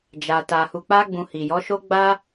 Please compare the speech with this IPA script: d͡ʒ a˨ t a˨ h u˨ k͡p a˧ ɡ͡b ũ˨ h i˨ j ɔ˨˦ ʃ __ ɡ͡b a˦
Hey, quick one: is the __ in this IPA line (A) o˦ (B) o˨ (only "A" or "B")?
A